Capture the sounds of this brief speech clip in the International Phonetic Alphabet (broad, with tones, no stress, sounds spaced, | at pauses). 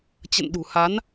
t͡ɕ ə̰˧˨ n ɗ ṳ˨˩ h a˨˦ n